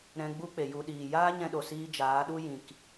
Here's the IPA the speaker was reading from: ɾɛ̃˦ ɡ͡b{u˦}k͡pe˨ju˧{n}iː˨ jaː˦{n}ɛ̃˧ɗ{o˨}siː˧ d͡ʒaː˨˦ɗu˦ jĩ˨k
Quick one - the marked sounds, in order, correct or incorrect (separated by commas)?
correct, incorrect, incorrect, correct